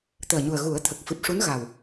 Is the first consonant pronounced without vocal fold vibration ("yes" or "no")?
yes